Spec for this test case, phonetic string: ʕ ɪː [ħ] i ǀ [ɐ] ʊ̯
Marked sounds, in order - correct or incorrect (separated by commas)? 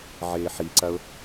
correct, correct